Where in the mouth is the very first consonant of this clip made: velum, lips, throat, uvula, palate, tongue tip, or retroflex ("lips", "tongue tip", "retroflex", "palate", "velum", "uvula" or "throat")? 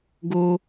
velum